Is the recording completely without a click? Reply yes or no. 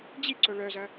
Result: no